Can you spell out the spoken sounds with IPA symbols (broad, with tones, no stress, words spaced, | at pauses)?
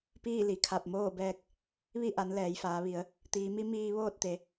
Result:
piː˥˨li˩˧kʰa˧˩p̚ moː˥˨bɛː˧k̚ | ʋi˥˨ʔa˩˧n lɛː˩˧jfaː˩˧ʋi˩˧ə̯ | t̪iː˩˧mi˧˥miː˧ ʋoː˥˨t̚t̪e˩˧